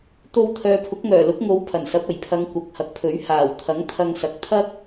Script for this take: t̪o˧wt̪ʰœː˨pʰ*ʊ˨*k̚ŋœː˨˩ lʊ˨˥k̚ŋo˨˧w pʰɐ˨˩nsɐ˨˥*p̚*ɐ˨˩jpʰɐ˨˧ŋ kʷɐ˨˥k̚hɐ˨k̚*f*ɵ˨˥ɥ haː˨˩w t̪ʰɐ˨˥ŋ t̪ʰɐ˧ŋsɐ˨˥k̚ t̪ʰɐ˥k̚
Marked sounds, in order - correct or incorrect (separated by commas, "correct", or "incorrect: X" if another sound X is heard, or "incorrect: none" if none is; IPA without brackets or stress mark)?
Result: incorrect: ʊ˨˥, correct, incorrect: pʰ